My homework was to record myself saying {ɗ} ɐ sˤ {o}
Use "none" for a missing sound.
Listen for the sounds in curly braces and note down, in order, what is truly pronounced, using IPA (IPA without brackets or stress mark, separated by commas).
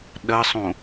ɗ, õ